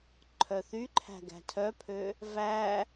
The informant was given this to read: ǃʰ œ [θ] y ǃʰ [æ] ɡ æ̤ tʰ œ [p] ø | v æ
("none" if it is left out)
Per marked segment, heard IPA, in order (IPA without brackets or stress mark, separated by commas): θ, æ̤, pʰ